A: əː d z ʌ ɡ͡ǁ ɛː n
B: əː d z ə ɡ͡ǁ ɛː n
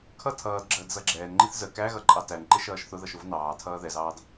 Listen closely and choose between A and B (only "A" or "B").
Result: A